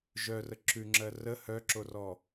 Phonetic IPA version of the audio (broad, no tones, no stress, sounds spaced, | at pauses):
ʒ œ r ə ǁ ʉ ŋ͡ǁ ɜ r ə h œ ǁ o r ɔ